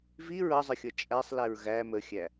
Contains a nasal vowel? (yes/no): no